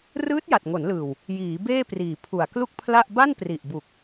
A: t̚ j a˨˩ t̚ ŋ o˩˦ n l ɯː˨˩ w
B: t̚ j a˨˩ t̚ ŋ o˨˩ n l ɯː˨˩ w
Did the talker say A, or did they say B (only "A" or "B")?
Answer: A